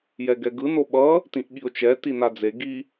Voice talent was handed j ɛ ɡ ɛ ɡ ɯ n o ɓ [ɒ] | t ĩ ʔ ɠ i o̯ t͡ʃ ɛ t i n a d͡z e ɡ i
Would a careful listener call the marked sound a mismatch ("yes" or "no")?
yes